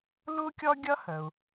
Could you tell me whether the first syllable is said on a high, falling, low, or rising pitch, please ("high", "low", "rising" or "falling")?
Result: high